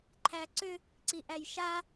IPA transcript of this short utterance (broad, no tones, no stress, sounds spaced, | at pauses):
ǃʰ æ ǀ ʏ | ǀ i ʔ æ j ʃ a